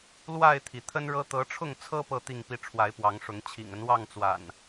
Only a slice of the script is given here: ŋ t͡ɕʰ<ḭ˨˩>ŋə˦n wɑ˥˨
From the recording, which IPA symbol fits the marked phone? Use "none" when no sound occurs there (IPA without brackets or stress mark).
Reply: ḭ˨˩